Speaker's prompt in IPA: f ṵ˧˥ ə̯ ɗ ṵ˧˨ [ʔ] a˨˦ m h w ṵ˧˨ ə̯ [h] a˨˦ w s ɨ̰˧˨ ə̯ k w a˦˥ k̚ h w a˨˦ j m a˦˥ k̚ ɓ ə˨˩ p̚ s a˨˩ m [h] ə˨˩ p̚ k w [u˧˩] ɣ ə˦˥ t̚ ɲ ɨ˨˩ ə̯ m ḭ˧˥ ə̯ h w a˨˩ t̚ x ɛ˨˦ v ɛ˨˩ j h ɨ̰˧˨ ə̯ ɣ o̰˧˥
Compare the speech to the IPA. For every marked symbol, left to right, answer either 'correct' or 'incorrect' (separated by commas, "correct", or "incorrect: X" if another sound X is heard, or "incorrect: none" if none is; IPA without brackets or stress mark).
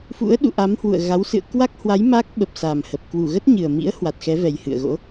correct, incorrect: ɣ, correct, correct